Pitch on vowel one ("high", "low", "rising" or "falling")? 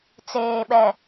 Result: low